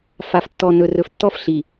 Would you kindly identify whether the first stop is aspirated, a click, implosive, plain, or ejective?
plain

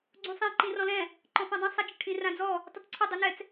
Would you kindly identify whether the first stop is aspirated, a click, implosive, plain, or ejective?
click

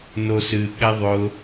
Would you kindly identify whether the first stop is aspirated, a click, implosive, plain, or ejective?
implosive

